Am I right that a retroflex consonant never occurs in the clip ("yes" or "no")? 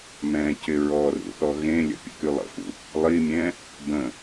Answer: yes